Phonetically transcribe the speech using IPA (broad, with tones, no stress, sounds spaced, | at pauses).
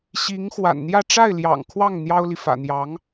ɕ i˧˥ ŋ x w a̰˨˩ n n̪ j ä˥˧ ʈ͡ʂ a˥˩ ɪ̯ l j ɑ̰˨˩ ŋ kʰ w ɑ˥˩ ŋ n̪ j ɑ˥ ʊ̯ l i˨ f ä̰˨˩ n̪ j ɑ˧˥ ŋ